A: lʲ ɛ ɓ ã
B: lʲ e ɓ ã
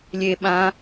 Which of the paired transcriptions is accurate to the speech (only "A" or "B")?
B